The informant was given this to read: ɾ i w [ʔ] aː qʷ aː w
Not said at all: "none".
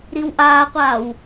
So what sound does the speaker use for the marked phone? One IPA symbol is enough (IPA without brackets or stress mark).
ʔ